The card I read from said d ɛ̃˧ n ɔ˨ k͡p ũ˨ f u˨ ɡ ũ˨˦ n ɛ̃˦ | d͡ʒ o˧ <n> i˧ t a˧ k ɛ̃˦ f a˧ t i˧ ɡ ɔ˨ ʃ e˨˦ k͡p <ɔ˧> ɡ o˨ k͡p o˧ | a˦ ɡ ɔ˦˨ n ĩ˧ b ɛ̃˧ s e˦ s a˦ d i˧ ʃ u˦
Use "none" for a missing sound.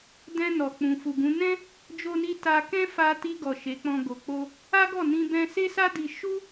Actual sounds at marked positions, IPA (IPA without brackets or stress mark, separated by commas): n, ɔ̃˧